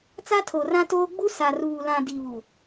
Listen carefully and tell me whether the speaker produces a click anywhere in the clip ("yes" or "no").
no